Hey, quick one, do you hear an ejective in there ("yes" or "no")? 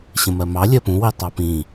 no